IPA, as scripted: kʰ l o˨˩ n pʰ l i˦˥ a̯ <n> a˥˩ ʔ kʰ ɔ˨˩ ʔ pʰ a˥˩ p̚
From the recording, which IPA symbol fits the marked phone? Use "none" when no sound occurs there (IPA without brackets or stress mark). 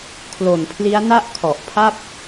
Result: n